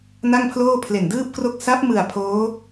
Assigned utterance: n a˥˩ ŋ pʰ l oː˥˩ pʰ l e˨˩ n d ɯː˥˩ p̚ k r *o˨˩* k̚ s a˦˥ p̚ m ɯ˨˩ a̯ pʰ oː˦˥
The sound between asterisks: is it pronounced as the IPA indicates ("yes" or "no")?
no